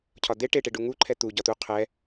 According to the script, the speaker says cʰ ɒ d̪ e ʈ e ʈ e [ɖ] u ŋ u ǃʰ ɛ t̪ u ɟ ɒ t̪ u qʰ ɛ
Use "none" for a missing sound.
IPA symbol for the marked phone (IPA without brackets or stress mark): ɖ